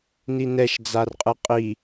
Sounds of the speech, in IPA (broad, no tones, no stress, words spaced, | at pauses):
ninɛʃ d͡zarqʼɯqʼi